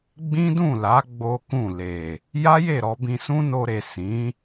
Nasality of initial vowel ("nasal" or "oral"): nasal